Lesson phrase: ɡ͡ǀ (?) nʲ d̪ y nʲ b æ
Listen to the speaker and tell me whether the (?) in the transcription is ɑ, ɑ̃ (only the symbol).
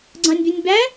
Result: ɑ̃